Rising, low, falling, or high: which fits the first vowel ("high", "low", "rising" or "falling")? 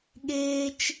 high